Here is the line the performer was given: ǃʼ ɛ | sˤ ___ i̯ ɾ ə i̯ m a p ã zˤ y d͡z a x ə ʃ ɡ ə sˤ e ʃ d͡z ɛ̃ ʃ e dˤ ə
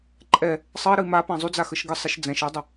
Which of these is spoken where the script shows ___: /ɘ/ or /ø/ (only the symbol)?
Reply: ɘ